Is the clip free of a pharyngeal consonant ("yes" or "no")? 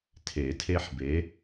no